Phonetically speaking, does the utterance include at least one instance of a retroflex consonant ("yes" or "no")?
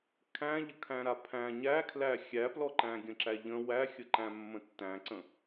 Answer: no